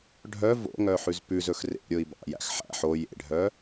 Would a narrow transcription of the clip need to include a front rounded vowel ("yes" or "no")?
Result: yes